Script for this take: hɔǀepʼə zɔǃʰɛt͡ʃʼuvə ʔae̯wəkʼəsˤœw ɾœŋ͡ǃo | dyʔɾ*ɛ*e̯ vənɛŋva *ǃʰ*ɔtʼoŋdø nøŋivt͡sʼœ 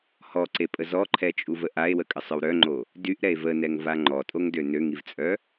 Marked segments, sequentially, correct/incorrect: correct, incorrect

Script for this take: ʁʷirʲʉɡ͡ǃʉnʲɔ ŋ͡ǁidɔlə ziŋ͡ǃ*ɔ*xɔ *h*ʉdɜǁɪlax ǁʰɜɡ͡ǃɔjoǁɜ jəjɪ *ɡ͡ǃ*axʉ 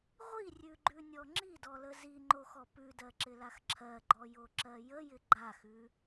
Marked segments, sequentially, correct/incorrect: incorrect, incorrect, correct

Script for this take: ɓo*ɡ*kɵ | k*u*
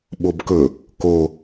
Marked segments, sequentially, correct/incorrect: incorrect, incorrect

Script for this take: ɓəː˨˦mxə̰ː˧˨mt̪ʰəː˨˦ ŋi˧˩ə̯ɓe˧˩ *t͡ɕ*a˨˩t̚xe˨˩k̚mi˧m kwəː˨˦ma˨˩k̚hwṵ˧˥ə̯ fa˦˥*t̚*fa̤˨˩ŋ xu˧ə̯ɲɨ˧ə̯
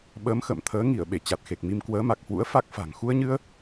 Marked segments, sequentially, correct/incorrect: correct, incorrect

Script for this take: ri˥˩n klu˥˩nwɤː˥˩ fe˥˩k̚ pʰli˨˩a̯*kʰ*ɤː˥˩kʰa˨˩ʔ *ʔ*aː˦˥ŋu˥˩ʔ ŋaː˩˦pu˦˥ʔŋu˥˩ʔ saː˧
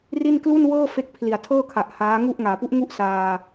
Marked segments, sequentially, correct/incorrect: incorrect, incorrect

